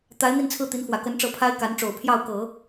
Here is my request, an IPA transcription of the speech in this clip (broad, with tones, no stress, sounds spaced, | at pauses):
t̪ a˧˥ ɪ̯ n̪ i˥˧ n t͡sʰ ɹ̩˥˩ t̪ i˧˥ n f w ä˨˩ k ə˧˥ n ʈ͡ʂ ɤ˧˥ pʰ a˥ ɪ̯ k a˧˥ n ʈ͡ʂ o˨˩ ʊ̯ pʰ j ɑ˥˩ ʊ̯ k ɤ˨˩˦